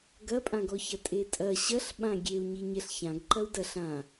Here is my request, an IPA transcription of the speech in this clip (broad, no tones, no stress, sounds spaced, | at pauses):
ɡ ɐ pʼ ã ɡ ɔ ç ɐ tʼ e tʼ ɐ ɕ ɐ ɬ ɓ ã ɡʲ e u̯ ɲ i ɲ ɛ ɬ ç ã ɡ ǃ ɐ u̯ d ɐ ɬ ã